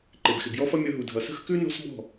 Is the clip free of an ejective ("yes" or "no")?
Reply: yes